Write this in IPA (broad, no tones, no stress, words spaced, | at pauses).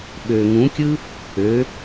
ɓø ŋũkʲɯ | ø